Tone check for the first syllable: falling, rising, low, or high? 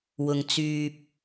low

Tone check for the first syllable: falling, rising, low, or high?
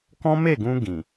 high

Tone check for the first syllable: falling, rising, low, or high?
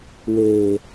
low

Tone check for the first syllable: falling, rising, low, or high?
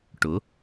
rising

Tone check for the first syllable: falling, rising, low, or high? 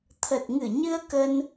low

